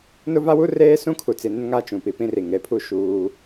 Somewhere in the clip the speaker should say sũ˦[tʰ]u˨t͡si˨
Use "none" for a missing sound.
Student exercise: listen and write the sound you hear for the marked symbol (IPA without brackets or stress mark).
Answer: kʰ